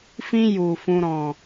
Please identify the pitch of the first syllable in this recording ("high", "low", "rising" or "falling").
high